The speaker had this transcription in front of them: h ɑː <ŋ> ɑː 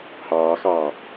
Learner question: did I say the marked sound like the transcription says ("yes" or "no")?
no